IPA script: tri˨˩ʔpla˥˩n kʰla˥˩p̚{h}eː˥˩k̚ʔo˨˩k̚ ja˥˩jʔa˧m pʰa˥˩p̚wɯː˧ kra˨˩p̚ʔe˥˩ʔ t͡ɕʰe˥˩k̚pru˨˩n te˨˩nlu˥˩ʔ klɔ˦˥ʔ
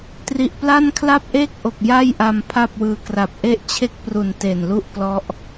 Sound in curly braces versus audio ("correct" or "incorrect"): incorrect